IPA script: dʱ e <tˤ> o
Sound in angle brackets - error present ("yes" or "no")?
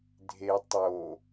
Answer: no